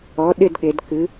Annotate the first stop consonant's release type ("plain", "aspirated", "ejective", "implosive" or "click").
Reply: implosive